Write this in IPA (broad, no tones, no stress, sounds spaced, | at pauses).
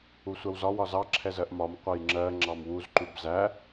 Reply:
u sʷ ɜ w z ɒ w ɒ z ɑ ǁʰ ɛ z ɜ ʔ m ɒ m qʷ ɑ j ŋ͡ǁ ɜ ŋ͡ǁ ɑ m w u z ǃ u b z æ